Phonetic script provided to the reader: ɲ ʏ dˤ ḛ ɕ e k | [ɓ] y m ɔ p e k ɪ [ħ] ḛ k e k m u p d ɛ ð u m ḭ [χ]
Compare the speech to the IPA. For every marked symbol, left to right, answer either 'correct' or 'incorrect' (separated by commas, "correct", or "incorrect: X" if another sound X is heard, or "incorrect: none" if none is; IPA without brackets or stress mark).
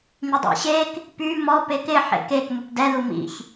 incorrect: p, correct, incorrect: ç